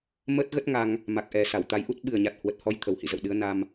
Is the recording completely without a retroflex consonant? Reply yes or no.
yes